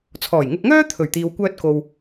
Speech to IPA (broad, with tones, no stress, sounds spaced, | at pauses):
t͡sʰ ɔː˨˩ j ŋ ʊ˧ k̚ ŋ œː˥ t̪ʰ ɵ˨˩ ɥ t̪ iː˨ w kʷ œː˧ t̚ k o˨ w